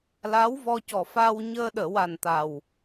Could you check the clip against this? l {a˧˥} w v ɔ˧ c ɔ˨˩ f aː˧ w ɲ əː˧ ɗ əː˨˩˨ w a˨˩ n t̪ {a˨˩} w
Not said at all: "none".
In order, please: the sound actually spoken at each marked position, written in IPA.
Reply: a˧˥, a˨˩

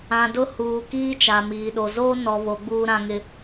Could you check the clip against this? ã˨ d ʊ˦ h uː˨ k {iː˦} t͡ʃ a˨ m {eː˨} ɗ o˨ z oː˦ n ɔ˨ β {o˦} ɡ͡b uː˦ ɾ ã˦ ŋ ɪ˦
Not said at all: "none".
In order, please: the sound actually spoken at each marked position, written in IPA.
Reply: iː˦, iː˨, o˨˦

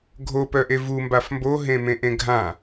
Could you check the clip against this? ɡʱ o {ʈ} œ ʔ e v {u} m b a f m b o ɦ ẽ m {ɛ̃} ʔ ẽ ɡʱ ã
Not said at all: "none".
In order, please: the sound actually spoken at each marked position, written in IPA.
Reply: p, u, ẽ

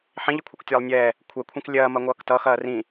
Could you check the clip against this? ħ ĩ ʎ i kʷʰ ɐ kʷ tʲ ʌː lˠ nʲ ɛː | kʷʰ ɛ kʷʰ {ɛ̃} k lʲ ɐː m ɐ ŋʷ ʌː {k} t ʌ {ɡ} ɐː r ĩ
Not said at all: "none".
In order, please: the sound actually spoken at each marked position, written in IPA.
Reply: ɛ̃, k, x

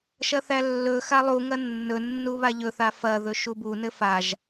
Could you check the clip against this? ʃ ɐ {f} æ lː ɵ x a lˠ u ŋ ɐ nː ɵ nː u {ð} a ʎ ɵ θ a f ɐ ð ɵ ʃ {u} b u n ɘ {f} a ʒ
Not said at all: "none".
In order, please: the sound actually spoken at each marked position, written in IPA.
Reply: θ, β, u, f

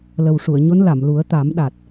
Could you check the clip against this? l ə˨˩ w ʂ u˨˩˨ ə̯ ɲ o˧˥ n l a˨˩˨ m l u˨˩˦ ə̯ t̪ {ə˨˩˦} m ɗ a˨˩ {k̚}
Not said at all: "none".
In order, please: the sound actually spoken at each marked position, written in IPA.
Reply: a˨˩˦, t̚

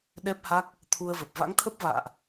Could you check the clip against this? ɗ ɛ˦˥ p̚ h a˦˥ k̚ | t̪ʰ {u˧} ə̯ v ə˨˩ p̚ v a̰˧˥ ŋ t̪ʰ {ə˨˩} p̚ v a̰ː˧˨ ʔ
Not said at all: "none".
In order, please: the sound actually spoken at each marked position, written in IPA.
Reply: u˧, ə˦˥

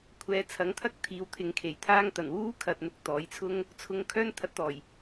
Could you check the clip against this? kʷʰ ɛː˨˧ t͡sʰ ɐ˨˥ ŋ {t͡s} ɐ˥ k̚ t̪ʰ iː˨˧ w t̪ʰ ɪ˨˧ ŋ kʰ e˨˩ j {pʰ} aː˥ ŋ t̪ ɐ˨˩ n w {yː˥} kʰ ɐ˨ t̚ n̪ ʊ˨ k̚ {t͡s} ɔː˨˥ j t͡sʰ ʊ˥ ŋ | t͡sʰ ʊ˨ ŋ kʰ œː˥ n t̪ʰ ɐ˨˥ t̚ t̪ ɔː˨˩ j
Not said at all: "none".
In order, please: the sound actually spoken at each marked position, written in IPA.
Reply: t̪ʰ, t̪ʰ, uː˥, t̪

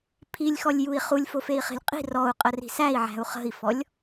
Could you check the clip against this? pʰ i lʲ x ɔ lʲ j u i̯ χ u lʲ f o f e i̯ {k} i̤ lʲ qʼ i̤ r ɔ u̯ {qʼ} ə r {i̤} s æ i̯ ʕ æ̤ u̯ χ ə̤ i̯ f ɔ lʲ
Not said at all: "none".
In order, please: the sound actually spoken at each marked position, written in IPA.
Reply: χ, qʼ, i̤

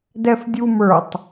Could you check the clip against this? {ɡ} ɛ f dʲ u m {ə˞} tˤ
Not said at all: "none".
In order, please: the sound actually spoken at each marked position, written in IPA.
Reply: d, ə˞

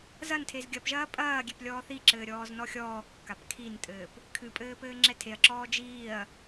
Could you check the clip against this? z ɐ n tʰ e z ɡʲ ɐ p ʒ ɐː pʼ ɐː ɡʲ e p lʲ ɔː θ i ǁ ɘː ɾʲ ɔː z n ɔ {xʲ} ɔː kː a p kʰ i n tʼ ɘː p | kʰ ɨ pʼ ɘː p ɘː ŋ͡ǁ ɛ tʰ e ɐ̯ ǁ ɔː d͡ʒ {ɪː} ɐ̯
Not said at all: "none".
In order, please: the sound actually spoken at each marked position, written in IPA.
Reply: xʲ, iː

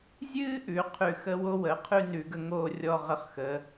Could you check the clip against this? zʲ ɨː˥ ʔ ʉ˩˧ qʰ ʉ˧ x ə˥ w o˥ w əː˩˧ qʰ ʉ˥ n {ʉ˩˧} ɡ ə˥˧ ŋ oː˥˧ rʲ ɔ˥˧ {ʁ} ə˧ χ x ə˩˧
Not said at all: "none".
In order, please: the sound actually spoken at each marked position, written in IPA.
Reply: ʉ˩˧, ʁ

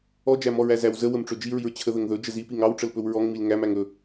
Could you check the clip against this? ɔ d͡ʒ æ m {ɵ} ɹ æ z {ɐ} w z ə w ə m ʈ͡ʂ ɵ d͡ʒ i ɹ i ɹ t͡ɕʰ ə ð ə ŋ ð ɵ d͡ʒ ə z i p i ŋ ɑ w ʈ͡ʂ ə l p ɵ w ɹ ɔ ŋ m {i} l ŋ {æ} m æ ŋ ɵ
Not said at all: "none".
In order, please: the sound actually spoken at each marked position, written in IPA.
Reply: ɔ, æ, i, æ

